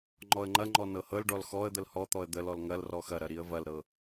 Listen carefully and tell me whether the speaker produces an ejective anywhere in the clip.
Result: no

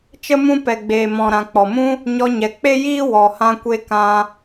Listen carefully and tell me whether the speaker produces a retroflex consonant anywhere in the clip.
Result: no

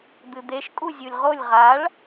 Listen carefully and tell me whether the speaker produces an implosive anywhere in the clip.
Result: no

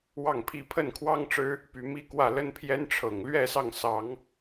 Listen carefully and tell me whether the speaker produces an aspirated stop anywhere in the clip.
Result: yes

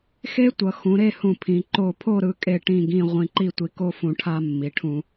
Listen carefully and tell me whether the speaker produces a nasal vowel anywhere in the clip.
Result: yes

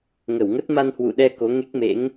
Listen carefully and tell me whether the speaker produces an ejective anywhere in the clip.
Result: no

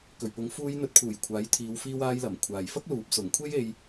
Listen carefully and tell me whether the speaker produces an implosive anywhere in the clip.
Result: no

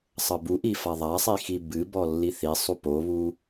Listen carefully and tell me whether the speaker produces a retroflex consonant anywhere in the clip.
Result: no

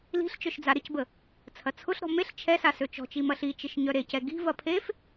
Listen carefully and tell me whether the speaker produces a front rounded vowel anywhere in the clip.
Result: yes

